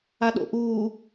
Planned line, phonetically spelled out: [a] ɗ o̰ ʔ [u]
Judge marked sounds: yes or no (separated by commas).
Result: yes, no